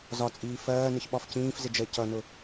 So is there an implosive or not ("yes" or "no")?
yes